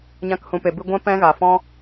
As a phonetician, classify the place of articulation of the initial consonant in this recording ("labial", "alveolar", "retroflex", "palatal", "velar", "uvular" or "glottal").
palatal